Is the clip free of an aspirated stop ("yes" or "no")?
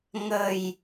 yes